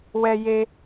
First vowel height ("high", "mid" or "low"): mid